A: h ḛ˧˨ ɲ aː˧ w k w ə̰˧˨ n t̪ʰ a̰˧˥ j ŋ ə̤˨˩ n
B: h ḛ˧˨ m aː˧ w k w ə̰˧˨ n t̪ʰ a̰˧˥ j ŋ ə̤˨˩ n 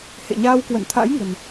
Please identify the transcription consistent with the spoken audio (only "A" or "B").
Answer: A